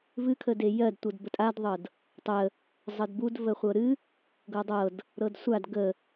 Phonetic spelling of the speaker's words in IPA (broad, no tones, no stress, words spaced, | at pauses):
vɨkʰəde jɜdtʷɤd bətʼadðˤɤd | tˤə | zˤədbud vəχʷɤɾɨ | ɡɤdˤɤd | ɾɤdsʷad ɡə